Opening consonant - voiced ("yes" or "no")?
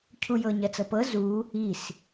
no